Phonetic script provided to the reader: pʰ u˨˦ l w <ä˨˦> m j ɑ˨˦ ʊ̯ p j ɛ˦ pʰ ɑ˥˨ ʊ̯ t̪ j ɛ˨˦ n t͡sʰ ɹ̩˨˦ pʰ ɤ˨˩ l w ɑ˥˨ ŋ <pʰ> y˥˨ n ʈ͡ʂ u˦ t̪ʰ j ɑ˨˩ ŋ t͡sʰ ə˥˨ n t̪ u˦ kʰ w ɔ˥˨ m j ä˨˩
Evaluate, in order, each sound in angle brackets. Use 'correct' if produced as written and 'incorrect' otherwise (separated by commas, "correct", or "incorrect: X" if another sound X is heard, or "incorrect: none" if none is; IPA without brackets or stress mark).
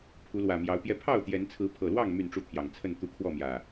incorrect: ä˨˩, incorrect: m